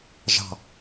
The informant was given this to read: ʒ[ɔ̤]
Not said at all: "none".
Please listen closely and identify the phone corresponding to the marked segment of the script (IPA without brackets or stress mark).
ɑ̤